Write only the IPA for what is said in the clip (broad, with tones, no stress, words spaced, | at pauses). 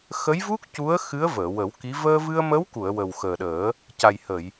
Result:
xə˧˥jvu˦˥k̚ cu˧˥ə̯ xɨ˧˥ə̯vəː˨˩˨ wə˨˩˦wki˧˥ vəː˧vɨ˧ə̯mə˧˥wku˨˩˨ə̯ wə˨˩wxəː˨˩ɗəː˨˩˦ | ca˨˩jhə˨˩˨j